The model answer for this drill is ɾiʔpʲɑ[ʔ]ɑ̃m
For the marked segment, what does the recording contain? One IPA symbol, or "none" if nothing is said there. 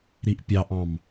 ʔ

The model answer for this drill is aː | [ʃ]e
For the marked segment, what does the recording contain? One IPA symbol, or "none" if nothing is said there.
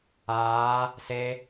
s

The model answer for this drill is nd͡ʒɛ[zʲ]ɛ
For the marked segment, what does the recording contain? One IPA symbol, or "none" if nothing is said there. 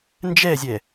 zʲ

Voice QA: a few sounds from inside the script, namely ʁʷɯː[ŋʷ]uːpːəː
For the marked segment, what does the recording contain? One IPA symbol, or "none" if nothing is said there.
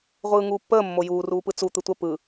ŋ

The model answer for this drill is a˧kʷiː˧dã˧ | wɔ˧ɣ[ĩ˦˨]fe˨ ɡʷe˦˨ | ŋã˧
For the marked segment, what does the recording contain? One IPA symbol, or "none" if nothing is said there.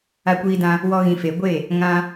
ĩ˨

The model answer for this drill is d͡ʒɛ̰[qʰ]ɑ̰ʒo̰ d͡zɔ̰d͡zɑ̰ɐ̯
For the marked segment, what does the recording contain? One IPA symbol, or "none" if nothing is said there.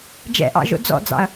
ʔ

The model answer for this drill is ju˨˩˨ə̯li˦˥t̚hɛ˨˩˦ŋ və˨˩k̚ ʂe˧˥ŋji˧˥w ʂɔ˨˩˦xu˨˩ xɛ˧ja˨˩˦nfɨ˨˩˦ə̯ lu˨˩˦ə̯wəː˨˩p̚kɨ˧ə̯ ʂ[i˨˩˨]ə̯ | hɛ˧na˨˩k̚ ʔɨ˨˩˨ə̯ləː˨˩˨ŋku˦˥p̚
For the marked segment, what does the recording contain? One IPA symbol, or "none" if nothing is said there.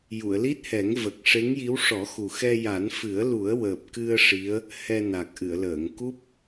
i˧˥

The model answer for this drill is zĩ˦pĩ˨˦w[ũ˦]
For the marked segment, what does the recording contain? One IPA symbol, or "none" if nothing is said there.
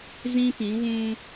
ũ˦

